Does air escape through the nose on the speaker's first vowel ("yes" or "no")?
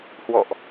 no